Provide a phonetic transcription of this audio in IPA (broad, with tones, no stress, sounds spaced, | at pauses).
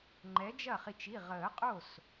ŋ͡ǃ ɛ˨˥ d͡ʒ ɐ˥˩ χ i˧ t͡ʃ i˩˧˩ ʁ əː˨˩˦ qʼ o˥˩ s